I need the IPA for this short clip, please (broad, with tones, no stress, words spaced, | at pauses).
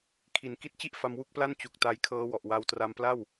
kʰi˩˦n ki˦˥t̚t͡ɕi˥˩ʔ fa˧mwu˥˩k̚pla˥˩n t͡ɕu˨˩k̚ta˧jkʰɤː˦˥ wɔ˨˩ʔwa˦˥w tra˧mpla˥˩w